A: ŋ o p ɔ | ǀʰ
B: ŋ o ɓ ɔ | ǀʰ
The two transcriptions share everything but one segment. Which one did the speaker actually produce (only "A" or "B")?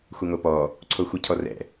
A